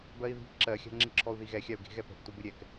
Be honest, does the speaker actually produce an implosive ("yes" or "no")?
no